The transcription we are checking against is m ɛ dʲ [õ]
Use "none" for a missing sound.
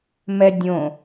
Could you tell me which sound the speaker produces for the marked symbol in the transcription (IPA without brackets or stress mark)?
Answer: õ